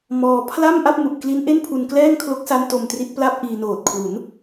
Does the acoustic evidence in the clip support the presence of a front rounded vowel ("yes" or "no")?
no